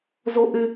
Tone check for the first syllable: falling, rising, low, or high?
high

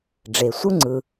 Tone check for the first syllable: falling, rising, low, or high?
low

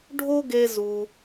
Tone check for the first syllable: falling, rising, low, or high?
high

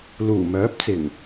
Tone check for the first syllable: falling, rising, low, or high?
low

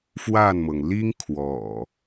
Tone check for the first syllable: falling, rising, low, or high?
falling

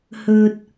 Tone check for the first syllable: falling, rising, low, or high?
low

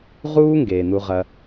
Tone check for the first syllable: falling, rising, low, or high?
high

